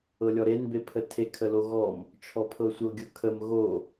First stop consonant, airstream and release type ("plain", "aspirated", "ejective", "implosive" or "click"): plain